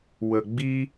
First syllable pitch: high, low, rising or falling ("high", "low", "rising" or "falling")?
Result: low